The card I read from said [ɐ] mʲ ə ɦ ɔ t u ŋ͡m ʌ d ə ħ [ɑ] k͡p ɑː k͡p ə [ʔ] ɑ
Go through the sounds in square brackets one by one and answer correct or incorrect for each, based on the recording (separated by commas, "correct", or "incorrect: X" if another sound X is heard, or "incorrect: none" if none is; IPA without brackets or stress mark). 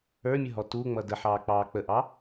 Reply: incorrect: ə˞, incorrect: ɑː, correct